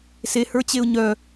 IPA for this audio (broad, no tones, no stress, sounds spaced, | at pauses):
s e h ə˞ t͡ɕ e ʊ̯ ɲ œ